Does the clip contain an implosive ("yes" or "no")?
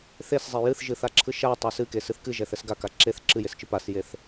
no